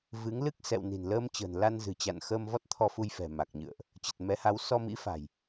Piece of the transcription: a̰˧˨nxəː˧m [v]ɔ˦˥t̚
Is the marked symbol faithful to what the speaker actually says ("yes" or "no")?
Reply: yes